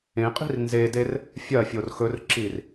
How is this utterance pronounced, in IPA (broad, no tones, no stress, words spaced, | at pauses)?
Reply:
ẽqʼi̤r nzeder | fʲɐ fʲorxɵrǁir